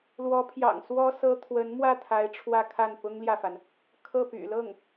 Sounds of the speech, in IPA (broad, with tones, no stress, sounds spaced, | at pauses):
l w ɔ˧˥ pʰ j ɑ̰˨˩ ŋ s w ɔ˥ s ɤ˥ t̪ʰ w ə˧˥ n m w ä˥˩ t̪ʰ a˧˥ ɪ̯ ʈ͡ʂʰ w ä˥˧ kʰ a˥˩ n p ʊ˥ ŋ l j ä˨ f a˩ n | kʰ ɤ˥˩ p y̰˨˩ l ɤ˥˩ ŋ